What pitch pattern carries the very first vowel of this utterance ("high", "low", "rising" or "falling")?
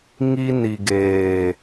high